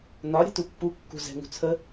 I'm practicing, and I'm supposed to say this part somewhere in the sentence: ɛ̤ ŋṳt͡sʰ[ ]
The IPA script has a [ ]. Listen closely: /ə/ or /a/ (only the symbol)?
ə